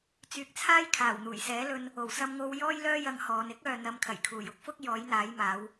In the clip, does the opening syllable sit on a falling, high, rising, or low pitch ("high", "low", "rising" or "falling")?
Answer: low